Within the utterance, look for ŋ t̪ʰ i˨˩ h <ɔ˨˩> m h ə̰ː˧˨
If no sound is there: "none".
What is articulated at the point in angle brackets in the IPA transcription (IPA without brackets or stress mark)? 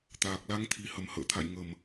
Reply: ə˨˩